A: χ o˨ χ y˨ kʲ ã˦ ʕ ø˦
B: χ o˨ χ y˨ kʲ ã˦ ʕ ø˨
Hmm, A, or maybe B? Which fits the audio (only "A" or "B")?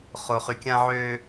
A